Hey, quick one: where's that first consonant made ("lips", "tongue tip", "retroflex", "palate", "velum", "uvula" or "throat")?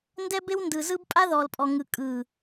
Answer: tongue tip